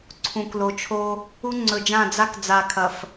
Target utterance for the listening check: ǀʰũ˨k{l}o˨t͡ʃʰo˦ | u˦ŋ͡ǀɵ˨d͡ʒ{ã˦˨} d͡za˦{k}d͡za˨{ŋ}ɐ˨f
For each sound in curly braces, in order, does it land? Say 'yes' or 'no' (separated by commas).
yes, yes, yes, no